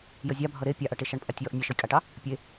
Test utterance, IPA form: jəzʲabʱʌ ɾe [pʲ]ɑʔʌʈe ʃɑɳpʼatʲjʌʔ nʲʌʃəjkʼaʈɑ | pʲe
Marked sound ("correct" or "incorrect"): correct